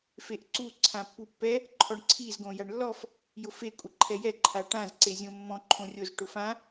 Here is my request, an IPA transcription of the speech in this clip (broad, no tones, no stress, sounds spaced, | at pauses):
f e ʔ ǀ u ǀʰ ã pː u pː ɛ | ǃʰ ɔ ɳ ǀʰ i z ɡ õ j a ɳ lː ɔ f | j ʊ f e kʷʼ ɪ ǃʰ ɛ j ɛ ǃʰ a ʈ ã z ǀ e zʲ õ mː ɔ̃ ǃʰ õ rʲ o z ʈ ʊ f ã